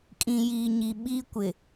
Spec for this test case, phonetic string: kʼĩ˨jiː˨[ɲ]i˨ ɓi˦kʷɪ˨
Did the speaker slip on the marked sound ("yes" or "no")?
no